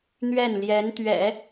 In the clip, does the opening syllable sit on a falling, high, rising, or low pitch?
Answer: falling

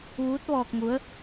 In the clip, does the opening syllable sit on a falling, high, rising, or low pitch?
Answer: rising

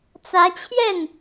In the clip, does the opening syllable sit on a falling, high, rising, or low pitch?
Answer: rising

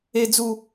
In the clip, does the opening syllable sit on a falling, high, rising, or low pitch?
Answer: high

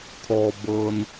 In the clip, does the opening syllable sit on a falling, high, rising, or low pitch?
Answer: low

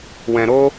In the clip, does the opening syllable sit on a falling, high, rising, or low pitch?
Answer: low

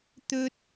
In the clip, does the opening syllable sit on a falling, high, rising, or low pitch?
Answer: high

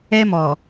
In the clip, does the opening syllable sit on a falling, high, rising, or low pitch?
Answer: high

